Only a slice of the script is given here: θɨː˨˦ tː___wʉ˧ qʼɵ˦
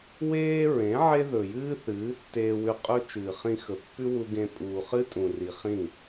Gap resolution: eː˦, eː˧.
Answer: eː˧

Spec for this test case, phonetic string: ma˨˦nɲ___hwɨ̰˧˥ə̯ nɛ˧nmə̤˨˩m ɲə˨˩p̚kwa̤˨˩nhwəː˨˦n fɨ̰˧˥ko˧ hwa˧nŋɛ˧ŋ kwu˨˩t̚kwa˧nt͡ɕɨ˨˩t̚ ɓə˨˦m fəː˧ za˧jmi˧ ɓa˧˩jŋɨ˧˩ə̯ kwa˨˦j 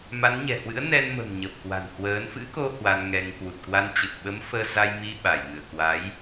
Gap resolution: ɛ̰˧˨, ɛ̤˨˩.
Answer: ɛ̤˨˩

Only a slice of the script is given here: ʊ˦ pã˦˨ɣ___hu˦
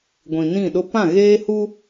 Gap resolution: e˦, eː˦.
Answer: eː˦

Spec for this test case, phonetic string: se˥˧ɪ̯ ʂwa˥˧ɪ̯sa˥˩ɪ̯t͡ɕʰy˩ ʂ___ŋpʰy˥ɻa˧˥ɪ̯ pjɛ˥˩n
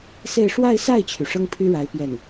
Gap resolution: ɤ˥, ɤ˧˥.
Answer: ɤ˥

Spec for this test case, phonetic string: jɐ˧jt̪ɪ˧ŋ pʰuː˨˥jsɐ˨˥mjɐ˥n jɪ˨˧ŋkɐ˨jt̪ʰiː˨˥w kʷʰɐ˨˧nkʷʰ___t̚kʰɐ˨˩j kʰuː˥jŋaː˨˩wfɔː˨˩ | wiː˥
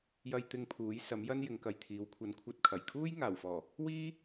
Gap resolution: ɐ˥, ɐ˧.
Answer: ɐ˧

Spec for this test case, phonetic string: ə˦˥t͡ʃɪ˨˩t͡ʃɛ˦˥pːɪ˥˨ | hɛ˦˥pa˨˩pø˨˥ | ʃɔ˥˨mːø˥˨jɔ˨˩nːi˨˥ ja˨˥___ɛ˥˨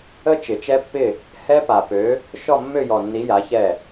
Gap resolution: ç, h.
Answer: ç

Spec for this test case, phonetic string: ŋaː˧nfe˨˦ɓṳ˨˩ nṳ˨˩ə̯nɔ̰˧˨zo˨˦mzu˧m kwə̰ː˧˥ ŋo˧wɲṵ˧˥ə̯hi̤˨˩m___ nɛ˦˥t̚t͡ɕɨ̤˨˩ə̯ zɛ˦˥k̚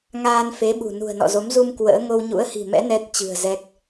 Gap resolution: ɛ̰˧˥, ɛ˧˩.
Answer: ɛ̰˧˥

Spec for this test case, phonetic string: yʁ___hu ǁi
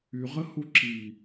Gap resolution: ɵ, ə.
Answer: ə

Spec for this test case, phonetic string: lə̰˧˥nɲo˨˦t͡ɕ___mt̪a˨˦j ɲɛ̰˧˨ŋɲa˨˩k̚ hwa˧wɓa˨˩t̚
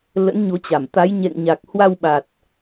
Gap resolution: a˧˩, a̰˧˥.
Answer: a˧˩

